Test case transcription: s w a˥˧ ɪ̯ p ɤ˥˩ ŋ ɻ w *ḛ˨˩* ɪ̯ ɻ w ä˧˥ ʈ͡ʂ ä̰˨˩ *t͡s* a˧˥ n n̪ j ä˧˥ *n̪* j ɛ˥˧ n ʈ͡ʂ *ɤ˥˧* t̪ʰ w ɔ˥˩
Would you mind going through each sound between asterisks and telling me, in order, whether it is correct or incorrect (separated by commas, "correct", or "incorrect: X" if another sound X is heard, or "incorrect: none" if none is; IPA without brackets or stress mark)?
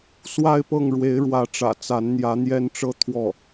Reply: incorrect: e˧˥, correct, correct, correct